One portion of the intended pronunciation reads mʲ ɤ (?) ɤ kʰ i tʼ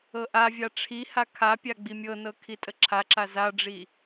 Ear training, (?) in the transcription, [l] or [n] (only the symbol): n